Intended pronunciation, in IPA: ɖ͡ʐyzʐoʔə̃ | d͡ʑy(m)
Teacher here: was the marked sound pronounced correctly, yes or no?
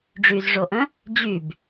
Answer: no